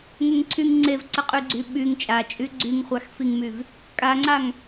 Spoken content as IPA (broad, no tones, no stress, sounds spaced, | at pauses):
ŋ ə ŋ ǀʰ y ŋ ŋ͡ǀ e v ǀ ə qʼ y ɡ͡ǀ y ɓ y ŋ t͡ʃʼ a t͡ʃʼ y ɡ͡ǀ y ŋ χʷ a x f i ŋ m y v | kʼ a ŋ͡ǀ a ŋ